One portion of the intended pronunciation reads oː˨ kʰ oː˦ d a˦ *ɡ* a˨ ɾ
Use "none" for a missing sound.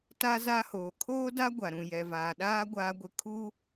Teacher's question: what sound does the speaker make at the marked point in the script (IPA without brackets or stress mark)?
ɡʷ